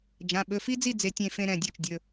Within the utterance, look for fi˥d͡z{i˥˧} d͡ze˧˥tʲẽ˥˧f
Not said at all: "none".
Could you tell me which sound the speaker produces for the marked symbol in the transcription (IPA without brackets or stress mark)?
i˥˧